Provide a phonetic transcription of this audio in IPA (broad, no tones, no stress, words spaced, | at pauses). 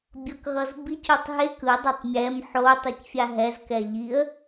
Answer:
bʲʌkɣʌzbicotˤ ɦek ɯdˤɯtˤ mʲɛm ħo tˤucfʲaɦɛzkɛ ʎiə̯